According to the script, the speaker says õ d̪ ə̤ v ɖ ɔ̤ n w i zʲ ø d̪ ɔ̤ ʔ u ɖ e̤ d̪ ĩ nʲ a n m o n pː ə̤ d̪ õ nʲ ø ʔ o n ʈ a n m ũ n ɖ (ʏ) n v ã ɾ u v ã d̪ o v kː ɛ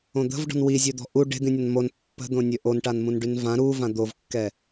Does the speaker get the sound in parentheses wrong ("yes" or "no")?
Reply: yes